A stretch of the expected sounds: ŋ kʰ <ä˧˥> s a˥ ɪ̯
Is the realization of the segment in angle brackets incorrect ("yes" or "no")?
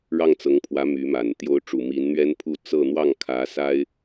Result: no